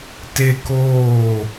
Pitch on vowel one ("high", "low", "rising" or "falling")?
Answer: high